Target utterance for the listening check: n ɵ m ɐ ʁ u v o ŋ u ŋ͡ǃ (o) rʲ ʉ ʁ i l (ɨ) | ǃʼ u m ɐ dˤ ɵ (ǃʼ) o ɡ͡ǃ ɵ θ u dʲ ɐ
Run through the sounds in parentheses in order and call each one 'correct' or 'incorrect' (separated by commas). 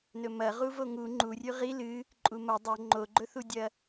incorrect, correct, incorrect